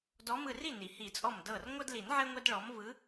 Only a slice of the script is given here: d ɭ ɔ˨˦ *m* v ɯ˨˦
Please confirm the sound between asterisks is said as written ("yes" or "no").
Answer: yes